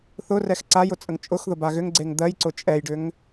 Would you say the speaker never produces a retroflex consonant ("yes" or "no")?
no